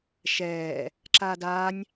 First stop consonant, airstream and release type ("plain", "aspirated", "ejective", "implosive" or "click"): click